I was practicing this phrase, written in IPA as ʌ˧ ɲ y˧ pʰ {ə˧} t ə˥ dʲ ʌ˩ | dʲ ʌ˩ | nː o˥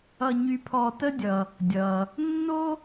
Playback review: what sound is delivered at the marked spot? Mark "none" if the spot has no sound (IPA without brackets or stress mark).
ɔ˧